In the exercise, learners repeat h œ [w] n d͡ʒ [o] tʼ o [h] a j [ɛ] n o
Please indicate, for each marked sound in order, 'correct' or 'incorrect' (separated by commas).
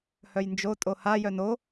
incorrect, correct, correct, incorrect